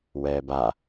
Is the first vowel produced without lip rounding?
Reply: yes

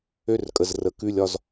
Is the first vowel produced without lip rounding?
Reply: no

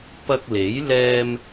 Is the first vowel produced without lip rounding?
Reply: yes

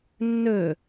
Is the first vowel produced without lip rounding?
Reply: no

